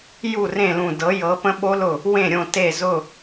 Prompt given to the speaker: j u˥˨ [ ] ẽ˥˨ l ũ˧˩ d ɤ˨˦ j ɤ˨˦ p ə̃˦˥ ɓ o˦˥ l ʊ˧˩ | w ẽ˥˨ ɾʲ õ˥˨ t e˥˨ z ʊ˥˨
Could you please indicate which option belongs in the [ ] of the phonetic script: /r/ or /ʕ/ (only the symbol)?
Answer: r